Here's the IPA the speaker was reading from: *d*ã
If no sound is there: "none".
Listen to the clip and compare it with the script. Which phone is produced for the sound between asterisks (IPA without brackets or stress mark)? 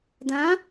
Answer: d